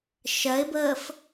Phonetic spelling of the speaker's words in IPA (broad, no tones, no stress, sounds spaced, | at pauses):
ʃ ɜ ɪ̯ b əː f